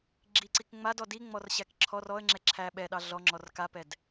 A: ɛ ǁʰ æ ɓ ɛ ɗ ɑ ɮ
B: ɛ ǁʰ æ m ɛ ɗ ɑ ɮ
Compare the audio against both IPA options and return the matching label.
A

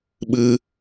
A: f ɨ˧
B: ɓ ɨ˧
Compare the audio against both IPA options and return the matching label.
B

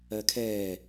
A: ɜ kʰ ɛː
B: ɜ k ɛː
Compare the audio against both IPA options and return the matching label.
A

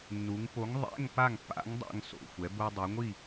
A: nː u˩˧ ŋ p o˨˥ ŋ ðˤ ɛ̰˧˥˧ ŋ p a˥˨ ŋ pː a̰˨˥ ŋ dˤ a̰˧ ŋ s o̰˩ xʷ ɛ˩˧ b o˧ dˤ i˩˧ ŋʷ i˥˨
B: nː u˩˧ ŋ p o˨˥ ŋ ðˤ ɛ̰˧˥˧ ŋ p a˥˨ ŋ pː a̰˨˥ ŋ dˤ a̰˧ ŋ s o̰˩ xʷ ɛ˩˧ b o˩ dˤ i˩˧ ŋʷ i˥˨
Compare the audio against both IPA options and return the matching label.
A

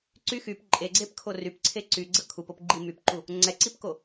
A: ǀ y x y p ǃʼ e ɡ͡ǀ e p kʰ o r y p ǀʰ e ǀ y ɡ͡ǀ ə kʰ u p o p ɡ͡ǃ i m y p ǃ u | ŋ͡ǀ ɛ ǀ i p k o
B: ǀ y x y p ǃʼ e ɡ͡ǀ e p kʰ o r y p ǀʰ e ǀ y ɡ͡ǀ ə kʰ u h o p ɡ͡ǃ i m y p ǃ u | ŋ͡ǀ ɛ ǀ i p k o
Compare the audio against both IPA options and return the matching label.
A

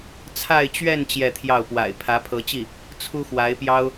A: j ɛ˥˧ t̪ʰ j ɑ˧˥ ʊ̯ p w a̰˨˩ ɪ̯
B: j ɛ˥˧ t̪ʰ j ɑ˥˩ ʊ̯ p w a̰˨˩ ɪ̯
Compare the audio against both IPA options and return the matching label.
B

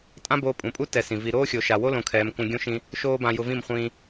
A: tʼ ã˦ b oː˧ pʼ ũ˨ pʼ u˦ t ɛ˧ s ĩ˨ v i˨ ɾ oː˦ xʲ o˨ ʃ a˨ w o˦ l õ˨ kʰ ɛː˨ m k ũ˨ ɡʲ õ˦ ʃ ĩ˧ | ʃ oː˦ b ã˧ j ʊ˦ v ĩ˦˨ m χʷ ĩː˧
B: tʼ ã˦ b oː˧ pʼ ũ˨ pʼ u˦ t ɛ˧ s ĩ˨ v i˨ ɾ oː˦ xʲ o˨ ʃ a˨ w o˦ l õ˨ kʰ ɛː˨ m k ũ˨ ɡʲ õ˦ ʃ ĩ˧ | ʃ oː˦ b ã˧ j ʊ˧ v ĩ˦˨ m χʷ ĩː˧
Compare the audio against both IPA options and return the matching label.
B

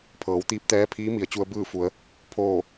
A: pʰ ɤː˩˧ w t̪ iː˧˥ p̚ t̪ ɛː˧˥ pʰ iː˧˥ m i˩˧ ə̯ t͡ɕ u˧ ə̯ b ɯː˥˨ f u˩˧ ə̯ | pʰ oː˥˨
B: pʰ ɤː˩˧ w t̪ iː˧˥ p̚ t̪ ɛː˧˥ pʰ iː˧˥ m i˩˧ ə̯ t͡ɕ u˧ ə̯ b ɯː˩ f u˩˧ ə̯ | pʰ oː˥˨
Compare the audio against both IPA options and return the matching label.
A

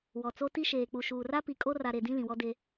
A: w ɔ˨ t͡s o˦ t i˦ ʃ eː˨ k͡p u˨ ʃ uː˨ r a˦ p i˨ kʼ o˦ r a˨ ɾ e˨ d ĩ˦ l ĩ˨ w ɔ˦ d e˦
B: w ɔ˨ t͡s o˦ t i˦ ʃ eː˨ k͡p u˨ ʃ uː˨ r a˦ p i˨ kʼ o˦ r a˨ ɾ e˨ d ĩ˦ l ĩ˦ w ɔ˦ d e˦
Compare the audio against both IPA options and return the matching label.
A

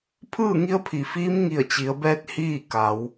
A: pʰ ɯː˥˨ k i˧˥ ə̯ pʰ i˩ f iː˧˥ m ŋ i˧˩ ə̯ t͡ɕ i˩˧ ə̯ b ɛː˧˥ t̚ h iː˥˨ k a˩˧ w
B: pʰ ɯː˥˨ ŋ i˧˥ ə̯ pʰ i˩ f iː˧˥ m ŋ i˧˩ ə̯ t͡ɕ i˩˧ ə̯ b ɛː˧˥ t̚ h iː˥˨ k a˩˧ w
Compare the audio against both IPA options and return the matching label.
B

